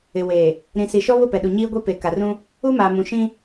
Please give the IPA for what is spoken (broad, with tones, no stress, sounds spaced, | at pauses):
ɪ˨ w eː˨ | ɾ ĩ˨ s i˨ ʃ ɔ˦ β ʊ˦˨ p ɛ˨ ɗ u˨ ɲ iː˦ ɡʷ i˦ p e˨ k a˨ r ũ˦ | u˦ m aː˨ m ũ˨ ʃ ĩ˦